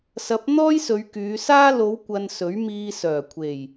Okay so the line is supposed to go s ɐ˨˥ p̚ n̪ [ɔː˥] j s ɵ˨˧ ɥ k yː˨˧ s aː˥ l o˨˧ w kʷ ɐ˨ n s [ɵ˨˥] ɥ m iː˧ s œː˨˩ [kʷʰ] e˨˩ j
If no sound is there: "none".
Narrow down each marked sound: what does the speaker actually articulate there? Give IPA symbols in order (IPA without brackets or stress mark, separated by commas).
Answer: ɔː˥, ɵ˨˥, kʷʰ